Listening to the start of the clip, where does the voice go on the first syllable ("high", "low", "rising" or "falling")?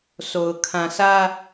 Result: low